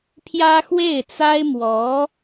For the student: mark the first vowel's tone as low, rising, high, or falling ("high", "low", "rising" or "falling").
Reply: high